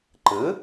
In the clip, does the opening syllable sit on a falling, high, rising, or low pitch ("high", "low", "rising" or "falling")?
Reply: rising